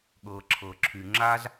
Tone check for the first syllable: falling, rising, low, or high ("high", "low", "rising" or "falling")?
low